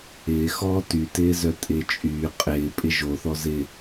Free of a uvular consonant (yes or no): no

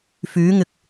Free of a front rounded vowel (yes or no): no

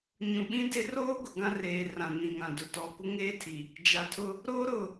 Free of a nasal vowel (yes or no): no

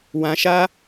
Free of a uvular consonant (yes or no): yes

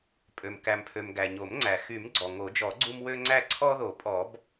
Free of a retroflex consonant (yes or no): yes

